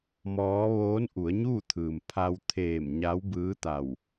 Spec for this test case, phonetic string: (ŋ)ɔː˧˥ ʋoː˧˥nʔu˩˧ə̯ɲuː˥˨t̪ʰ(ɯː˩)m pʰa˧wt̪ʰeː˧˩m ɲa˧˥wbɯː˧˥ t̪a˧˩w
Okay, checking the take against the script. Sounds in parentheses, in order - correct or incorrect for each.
incorrect, correct

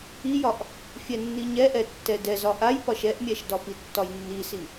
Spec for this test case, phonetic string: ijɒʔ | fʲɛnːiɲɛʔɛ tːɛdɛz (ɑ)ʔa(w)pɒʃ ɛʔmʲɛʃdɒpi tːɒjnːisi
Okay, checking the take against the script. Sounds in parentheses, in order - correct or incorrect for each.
incorrect, incorrect

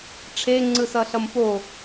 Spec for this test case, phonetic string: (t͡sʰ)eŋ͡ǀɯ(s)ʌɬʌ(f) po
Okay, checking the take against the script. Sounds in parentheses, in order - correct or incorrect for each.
incorrect, correct, incorrect

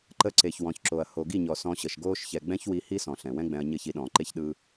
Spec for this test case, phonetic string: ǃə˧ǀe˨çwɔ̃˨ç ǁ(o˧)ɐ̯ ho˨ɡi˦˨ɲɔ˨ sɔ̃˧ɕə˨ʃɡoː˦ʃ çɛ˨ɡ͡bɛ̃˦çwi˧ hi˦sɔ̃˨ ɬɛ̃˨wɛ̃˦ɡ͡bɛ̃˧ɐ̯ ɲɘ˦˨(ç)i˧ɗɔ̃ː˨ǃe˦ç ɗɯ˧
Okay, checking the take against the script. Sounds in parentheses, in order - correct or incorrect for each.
incorrect, correct

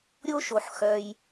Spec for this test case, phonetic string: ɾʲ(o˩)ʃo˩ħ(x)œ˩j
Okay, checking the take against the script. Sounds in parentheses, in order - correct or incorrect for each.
incorrect, correct

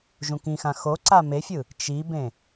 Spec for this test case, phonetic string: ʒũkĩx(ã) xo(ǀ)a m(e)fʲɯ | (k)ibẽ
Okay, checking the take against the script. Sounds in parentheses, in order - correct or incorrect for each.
correct, correct, correct, incorrect

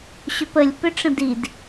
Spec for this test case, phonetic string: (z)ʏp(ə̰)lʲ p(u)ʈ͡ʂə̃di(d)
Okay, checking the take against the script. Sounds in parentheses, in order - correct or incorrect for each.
incorrect, incorrect, incorrect, correct

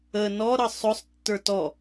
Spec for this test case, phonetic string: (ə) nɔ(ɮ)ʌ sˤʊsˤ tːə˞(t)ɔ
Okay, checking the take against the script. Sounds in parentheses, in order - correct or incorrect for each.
correct, incorrect, correct

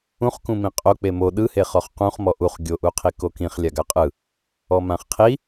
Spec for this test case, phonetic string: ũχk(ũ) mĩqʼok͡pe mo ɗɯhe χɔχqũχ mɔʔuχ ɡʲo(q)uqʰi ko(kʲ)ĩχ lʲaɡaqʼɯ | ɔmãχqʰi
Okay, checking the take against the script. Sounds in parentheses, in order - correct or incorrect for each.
correct, incorrect, incorrect

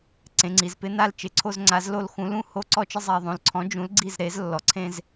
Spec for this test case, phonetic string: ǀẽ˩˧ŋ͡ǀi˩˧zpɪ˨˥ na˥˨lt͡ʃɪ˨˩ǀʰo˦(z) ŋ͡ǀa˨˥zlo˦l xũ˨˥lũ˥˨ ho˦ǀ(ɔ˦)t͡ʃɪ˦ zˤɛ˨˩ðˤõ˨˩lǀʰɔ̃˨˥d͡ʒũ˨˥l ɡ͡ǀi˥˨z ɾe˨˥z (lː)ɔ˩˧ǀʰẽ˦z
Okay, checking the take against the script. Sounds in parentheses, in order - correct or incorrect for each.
correct, correct, correct

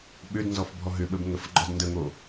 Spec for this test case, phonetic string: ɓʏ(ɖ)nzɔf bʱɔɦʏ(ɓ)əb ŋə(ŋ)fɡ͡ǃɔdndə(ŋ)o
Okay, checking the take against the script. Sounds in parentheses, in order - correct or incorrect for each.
incorrect, correct, incorrect, correct

